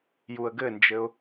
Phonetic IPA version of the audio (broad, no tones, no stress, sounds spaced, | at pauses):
j u ə̯ ɡ ɘ n d͡ʒ ɘ ʊ̯